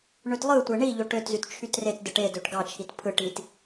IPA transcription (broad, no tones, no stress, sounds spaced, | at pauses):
ɳ ø t lˠ ɯ tʷ e ɳ i ʎ o ʈ ø t z y t t͡ʃʰ y t r e t d ɯ ʈ e d ø ʈ ɡ ɑ t͡ʃʰ i t pʰ ɯ ʈ i t